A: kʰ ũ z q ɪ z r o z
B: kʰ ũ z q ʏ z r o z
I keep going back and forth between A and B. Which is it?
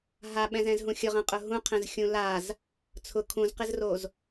A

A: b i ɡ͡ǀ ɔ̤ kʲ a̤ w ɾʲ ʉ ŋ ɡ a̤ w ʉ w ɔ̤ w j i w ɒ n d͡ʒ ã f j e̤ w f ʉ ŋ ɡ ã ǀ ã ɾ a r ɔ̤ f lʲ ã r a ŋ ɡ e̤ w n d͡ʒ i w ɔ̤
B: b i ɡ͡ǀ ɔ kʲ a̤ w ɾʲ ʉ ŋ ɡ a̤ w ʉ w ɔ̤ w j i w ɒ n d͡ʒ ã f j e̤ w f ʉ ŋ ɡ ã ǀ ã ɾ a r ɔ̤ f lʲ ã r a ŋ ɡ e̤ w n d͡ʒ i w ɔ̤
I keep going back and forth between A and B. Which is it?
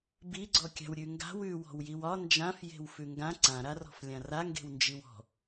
B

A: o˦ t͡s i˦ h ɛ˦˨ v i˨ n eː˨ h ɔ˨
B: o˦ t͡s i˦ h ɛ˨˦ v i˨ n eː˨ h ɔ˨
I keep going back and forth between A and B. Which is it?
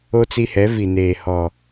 B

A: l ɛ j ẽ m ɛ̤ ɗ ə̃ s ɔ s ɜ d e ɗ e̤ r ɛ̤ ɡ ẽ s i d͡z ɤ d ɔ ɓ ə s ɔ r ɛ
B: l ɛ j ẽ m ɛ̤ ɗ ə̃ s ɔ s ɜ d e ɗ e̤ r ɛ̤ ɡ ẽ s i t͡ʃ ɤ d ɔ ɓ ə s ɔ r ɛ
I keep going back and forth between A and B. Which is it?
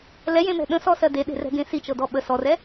B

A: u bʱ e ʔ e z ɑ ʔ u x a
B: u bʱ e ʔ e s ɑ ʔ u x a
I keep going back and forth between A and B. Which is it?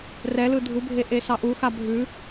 B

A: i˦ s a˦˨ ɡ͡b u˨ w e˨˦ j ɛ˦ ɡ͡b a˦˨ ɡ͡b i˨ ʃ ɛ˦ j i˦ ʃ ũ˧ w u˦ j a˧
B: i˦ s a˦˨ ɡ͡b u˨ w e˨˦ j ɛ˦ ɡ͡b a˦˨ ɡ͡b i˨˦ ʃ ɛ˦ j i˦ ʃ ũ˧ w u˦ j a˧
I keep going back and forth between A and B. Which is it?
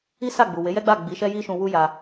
B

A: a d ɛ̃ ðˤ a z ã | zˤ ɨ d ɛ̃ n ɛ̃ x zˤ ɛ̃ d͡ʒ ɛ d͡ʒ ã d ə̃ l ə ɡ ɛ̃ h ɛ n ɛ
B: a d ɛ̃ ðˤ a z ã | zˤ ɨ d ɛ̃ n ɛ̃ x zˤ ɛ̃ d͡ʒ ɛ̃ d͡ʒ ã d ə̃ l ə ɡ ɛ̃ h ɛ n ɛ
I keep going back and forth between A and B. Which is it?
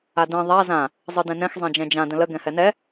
B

